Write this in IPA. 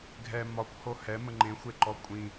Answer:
ɡʱ ɛ m ɒ kʷ h o h ɛ m ə ŋ͡ǃ ẽ xʷ e ǃ ɔ kʷʼ ĩ

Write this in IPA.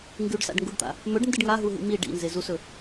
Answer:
ŋ ɡ ʉ ɖ s a̰ ɖ ŋ ɡ u ɖ t̪ a̰ | m ɵ ɖ n d ɨ ɖ ŋ a ɦ u ɦ ḭ m i ɖ ḭ n z e z u s ɵ

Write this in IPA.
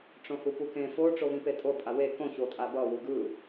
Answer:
ʈ͡ʂ õ h u p u k ẽ f o ʈ͡ʂ o β ĩ p e tʼ o pʼ a w e k õ ç o tʼ a b ʌ w u ɡ ɯ

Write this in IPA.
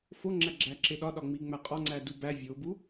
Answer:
f o ŋ͡ǁ æ ɡ͡ǁ æ ǁ e ɗ ɒ ɗ ɒ ŋ͡m i ŋ͡m æ qʼ ɒ ŋ͡ǀ æ d u b æ vʲ o b u

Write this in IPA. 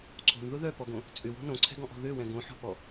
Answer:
ǀʰ o̤ n ð ʊ ð œ p ɔ ɡ õ | t͡sʼ ʏ w o̤ n õ ǀʰ ɛ̤ ɡ ɔ̃ ʔ ɔ̤ ð ø w ɛ̃ ɡ õ ħ ɔ̤ p ɔ

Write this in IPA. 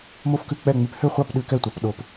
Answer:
m o˥˨ f k ʉ˥˨ k͡p ɛ˥˨ ŋ͡m y˧˥ p h ø˥˨ χʷ ɑ˥˨ p ɗ ʉ˧˥ k ɛ˥˨ tʷ ɑ˧˥ p ɗ o˧˥ p

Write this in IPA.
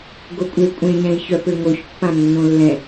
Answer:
ɡ o kʷʼ e kʷʼ ẽ ɲ ɛ̃ i̯ ç œ p ø ŋ o ç pː ã nː õ lː ɛ̃

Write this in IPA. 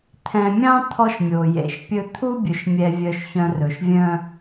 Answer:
t̪ʰ ɛ̃˨ mʲ ɑ̃˦ t̪ʰ ɔ˦ ʃ mʲ o˨ j ḛ˨ ʃ pʲ ɵ˦ t̪ʰ u˦ bʲ ɵ˨ ʃ mʲ ɛ˨ vʲ œ˨ ʃ ç œ̃˨ r ɵ˨ ʃ vʲ œ̃˦

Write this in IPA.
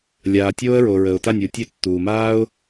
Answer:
lʲ aː˨ tʲ oː˥ ə̯ ɹ o˨ ɹ ə˨ ʊ̯ t a˥˨ nʲ u˨ tʲ ø˥˨ tː uː˨ m aː˥ ʊ̯

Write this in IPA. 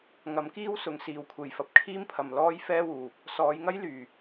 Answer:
ŋ ɐ˨˥ m k iː˥ w s ʊ˨˧ ŋ s iː˨ w kʷʰ e˨ j f ɐ˨˥ p̚ kʰ iː˥ m pʰ ɐ˨ m l ɔː˥ j f ɛː˥ w uː˨ | s ɔː˨˧ j ŋ ɐ˥ j l yː˨˩

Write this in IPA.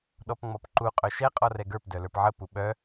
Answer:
ɗ ɔ p ŋ͡m ɔ p ǃ u qʼ œ ʃ ɛ qʼ ɔ r ɛ ɡ ə˞ p d œ l ə˞ p ʕ ə p u ɓ œ

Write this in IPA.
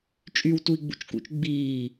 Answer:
t͡ʃʼ y w t u i̯ ɡ͡b ṵ t͡ʃ k ṵ t͡ʃ ɡ͡b iː

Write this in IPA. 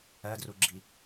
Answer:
ɜ d r u ɡ͡ǁ i

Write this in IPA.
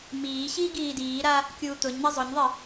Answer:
m iː ɕ iː ɡ iː d iː ɾ a | kʲ uː t̪ ʊ ɲ n̪ a zˤ ʊ ɲ ðˤ i

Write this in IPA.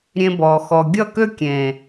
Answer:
ɾʲ ẽ˧ b ɔː˨ x ɔ˨ ɡʲ ʌ˦˨ k ø˦ kʲ ẽː˨

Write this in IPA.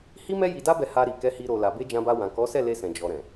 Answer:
h i˦ m ɛ˦ j i˧ d a˦ b ɛ˧ h a˧ ɾ i˨ k ɛ˨˦ h i˧ ɾ o˨ l a˨ b e˧ d͡ʒ ã˧ b a˧ w ã˨ k ɔ˨˦ s ɛ˦˨ l e˧ s ɛ̃˨ d͡ʒ ɔ˨ ɾ ɛ̃˨

